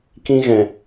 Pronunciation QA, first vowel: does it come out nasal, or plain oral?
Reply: nasal